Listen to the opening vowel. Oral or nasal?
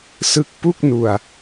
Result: oral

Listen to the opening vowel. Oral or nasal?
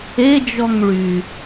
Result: oral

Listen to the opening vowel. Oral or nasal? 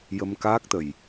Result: oral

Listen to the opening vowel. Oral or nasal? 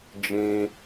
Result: nasal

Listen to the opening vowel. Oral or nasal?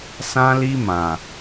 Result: nasal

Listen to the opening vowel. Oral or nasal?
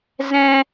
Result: nasal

